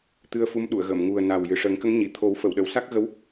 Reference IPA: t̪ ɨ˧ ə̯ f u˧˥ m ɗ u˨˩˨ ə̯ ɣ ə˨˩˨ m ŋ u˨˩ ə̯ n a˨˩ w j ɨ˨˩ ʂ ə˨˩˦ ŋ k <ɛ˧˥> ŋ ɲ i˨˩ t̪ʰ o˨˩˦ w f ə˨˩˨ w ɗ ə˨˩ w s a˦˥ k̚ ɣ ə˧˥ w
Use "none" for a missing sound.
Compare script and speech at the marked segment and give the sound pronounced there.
ə˧˥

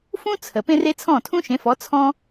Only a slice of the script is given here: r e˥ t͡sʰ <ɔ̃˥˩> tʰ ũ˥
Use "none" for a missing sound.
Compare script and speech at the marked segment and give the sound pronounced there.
ɔ̃˥˩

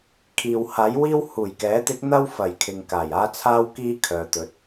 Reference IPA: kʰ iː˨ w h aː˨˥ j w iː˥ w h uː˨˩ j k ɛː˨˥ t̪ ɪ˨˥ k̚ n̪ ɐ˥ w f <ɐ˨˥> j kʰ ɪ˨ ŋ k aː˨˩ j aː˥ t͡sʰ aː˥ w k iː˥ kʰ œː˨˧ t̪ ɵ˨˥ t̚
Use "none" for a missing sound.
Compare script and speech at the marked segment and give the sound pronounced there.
ɐ˨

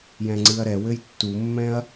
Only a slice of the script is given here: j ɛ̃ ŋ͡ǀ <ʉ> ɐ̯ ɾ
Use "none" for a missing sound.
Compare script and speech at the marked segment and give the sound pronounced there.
ɨ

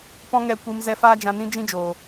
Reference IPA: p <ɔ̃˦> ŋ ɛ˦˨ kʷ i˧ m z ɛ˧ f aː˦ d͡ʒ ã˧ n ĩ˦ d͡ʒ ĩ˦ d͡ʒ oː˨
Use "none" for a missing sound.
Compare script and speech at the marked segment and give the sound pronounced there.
ɔ̃˦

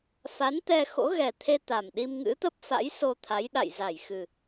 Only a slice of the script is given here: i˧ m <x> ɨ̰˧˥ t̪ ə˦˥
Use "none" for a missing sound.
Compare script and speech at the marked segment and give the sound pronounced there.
ŋ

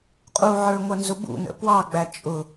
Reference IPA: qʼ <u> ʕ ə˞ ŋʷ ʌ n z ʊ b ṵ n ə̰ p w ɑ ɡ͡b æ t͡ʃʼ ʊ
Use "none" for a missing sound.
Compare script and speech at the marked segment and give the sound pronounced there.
u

